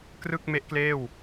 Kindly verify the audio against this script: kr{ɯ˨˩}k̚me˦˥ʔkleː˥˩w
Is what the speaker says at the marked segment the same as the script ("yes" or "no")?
no